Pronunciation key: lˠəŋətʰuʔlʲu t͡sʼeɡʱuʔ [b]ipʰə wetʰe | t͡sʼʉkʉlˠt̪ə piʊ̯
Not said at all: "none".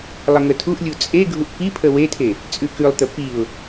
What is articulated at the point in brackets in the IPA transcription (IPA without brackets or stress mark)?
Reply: p